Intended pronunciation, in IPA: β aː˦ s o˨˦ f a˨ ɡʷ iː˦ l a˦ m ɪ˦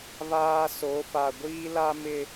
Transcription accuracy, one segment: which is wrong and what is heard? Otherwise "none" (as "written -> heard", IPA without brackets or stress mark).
none